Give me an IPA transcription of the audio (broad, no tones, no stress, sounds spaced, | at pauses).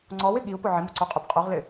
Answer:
ŋ͡ǀ ɔ w ɪ ɠ i u̯ p ʊ ʕ ɪ m ʊ ǀ o qʼ ʊ b qʼ o ʁ l ɪ